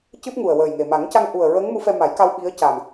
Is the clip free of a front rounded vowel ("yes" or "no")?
yes